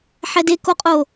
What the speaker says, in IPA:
ħɛdekoqʼo

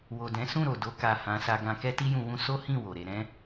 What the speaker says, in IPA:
wo˨dɛ̃˨˦sũ˦˨ɾo˨ do˧ka˨ hã˧ sa˧ɡã˧ kɛ˦ti˦jũ˧wũ˦ so˦hĩ˦˨ wo˨ɾe˧ ɾɛ̃˦

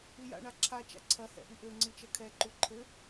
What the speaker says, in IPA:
ija̰ɳa ǁʰat͡ʃa̰ ǀʰɐhɛ̰ ʔiʔɘŋ͡ǀɨ t͡ʃɐkʰɛǃu ǃʰɘ

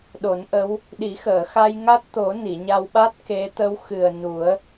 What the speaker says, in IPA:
ɗo˨˩˦nʔə˧˥w | ɗi˨˩˦xəː˨˩˨xa˧j ŋa˦˥t̚t̪o˨˩˦ ni˨˩˨ɲa˧wɓa˦˥t̚ ke˧˥ t̪ə˧˥wxɨ˨˩ə̯nu˨˩˦ə̯

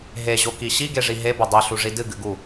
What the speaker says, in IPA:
ɦeʑoki ɕiɡeʐi ɦebɵ dˤiɬuʐi dɨɡɨɡu

